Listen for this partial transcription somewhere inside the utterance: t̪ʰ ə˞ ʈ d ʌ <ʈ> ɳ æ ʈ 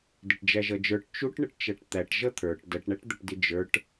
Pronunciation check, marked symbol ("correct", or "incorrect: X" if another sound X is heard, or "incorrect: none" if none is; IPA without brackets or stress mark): correct